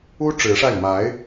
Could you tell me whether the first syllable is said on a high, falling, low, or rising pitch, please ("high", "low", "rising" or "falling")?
high